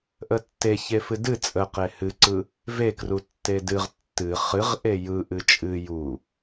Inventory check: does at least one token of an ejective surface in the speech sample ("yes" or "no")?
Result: yes